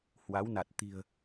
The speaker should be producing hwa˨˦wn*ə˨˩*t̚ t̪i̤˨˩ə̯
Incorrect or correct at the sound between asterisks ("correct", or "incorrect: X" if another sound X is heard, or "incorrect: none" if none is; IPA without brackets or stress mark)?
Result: incorrect: a˨˩